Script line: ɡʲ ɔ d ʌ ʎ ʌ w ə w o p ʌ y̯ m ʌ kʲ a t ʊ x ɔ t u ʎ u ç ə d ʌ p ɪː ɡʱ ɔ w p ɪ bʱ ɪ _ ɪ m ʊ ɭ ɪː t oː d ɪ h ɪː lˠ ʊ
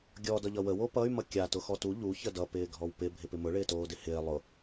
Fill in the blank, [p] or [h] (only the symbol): p